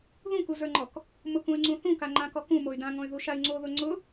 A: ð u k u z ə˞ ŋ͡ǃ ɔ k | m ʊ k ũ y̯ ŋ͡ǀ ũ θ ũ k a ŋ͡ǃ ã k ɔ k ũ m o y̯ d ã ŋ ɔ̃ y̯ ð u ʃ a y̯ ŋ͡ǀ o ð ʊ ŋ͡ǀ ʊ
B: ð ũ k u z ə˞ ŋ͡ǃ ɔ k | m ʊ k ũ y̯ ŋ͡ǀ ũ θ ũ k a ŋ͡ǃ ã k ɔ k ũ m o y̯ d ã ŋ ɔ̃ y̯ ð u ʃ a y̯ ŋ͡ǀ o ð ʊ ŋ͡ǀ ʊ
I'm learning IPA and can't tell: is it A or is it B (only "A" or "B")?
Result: B